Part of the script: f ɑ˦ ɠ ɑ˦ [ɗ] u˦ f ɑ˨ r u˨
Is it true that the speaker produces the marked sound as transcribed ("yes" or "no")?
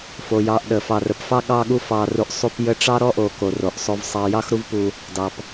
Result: no